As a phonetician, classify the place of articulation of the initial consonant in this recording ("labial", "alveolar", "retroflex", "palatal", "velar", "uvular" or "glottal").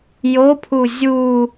palatal